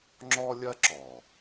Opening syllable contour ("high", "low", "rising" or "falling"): high